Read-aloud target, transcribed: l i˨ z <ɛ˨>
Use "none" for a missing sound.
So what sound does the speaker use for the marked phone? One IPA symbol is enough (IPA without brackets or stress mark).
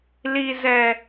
ɛ˨